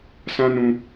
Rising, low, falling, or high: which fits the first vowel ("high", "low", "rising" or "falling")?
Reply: high